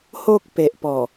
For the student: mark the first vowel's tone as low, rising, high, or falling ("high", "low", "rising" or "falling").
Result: high